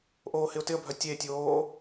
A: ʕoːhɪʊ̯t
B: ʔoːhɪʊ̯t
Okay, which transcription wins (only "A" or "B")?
B